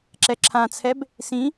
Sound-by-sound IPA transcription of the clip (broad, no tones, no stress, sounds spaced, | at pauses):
ǁ ɛ ǁʰ ã t͡sʰ ɛ b | s ĩ